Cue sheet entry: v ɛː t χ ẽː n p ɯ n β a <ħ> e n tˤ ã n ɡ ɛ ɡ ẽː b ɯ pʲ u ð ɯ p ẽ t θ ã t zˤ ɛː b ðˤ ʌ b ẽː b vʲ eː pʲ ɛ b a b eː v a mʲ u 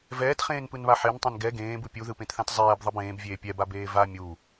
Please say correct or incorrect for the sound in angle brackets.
correct